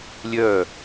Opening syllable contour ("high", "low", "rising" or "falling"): falling